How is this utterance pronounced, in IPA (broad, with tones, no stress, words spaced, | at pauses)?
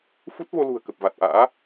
fu˦˥t̚vo˧lṳ˨˩ə̯kə˨˩p̚ va˨˩t̚ʔa̰ː˧˥